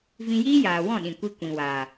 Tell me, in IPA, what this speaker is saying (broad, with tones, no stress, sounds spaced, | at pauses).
v ĩ˧ j iː˦ j aː˨ w ɔ̃˦˨ ɗ ĩ˨ kʷ i˧ kʷ ĩ˨ w aː˨